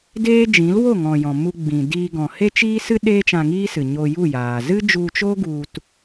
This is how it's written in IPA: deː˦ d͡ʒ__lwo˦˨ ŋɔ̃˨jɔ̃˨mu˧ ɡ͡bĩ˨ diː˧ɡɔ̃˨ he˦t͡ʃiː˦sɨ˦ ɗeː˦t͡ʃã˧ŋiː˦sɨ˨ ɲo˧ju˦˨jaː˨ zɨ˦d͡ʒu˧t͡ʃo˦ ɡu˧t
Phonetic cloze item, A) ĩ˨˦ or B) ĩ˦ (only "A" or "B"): A